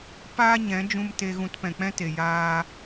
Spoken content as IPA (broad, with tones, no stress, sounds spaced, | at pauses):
p aː˦ ɲ ɛ̃˨˦ d͡ʒ ũ˧ m t e˧ ɣ ũ˧ t p ɛ̃˨ k͡p ɛ̃˦ t e˨ j aː˧